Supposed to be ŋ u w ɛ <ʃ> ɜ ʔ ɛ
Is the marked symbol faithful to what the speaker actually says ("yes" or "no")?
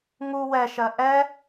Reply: yes